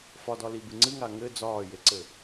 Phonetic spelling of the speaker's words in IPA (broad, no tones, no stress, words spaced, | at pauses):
fɒdɒlibɨ ŋ͡ǀɨŋa ŋɘ d͡zɒːjeǀɘ